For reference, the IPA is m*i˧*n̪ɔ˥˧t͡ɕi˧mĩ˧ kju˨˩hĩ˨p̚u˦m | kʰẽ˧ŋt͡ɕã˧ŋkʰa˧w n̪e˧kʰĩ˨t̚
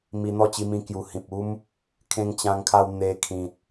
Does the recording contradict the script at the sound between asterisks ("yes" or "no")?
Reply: no